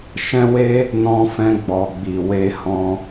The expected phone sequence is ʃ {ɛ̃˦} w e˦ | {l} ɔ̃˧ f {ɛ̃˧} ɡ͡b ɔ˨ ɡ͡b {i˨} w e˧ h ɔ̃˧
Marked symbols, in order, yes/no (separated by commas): yes, no, yes, yes